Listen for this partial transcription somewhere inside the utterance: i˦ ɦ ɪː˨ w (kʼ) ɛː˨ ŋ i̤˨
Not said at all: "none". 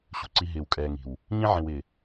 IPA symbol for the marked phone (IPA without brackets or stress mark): kʼ